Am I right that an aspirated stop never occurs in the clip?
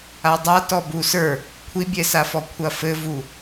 no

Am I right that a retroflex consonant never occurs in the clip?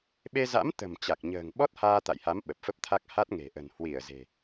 yes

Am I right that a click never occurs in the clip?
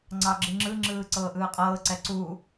no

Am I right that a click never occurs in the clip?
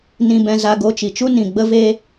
yes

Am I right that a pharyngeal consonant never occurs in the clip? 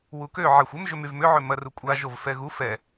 no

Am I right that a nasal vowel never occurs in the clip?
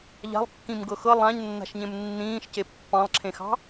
no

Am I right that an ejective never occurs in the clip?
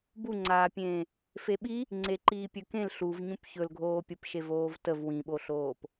yes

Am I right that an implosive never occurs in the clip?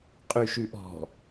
yes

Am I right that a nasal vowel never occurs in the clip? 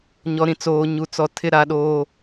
no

